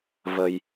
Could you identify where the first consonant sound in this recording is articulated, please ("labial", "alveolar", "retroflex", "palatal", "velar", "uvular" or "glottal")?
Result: labial